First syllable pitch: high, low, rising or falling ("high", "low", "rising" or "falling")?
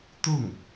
falling